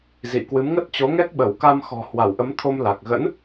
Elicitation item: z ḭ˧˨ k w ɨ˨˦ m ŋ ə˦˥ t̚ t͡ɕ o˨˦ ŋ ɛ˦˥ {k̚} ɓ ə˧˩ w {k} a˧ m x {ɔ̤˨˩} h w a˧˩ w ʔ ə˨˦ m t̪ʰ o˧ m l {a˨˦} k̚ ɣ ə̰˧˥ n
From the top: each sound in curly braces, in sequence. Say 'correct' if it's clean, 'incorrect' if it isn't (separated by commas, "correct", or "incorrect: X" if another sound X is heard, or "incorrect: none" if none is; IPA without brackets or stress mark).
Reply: correct, correct, correct, incorrect: a˨˩